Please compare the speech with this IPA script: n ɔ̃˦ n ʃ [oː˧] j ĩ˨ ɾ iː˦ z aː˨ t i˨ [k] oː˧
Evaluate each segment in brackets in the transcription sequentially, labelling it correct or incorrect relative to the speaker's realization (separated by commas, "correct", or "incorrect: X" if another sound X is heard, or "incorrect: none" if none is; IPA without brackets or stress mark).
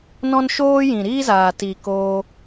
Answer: incorrect: oː˦, correct